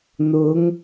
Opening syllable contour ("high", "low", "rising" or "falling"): rising